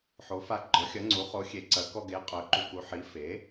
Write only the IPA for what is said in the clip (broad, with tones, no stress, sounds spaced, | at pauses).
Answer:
ħ o˩˥ f a˧ ɡ͡ǃ ɔ˩˥ xʲ ɐ˩˥ ŋ͡ǀ u˩˥ χ o˩˥ xʲ e˩˥ ǀ ɐ˩˥ k ɔ˧ ɡ e˩˥ qʼ œ˩˥ ǃ u˧ k u˩˥ ħ i˩˥ f e˩˥